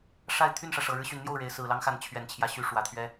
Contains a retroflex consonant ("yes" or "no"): yes